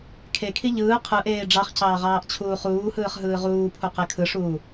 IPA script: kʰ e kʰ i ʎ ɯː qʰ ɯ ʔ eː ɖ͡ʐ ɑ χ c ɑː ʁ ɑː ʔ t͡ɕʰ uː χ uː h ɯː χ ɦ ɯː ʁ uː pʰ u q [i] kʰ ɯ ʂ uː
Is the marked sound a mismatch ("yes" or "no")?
yes